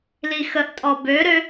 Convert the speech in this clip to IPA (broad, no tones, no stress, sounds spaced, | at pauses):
l i x ə ʔ tʼ ɔ b ø ɾ ø